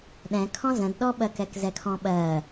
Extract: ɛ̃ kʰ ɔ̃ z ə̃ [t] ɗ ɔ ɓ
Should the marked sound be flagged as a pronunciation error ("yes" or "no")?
yes